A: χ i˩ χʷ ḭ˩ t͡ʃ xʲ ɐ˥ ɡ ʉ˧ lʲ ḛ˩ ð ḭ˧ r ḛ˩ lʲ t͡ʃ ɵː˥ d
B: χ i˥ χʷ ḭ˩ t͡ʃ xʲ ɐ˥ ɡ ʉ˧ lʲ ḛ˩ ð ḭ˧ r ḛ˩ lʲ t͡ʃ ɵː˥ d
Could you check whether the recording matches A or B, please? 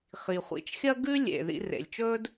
A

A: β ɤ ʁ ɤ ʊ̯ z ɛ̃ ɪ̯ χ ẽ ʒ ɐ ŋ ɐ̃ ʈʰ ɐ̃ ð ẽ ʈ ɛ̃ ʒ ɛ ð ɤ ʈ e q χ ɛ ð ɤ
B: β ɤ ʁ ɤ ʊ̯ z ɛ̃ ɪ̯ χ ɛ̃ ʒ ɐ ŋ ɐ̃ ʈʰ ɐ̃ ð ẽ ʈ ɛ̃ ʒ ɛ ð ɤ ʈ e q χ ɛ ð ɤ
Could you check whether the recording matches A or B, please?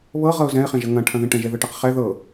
A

